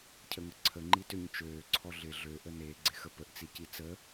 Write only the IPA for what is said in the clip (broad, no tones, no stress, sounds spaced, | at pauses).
cʰ ə ŋ ə ǀʰ ə ŋ͡ǃ i t ø ɲ t͡ʃ øː ǀʰ ɔ ɮ ɪ ɮ ø ʔ ə n e ɡ͡ǀ ɪ x ə p ə ʔ t͡s i c i t͡s ə